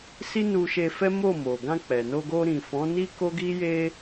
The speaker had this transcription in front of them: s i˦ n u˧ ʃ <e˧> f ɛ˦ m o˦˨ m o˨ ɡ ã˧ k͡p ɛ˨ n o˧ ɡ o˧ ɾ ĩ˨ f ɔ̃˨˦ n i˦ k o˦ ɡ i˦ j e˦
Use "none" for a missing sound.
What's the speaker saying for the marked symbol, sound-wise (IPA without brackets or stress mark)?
e˧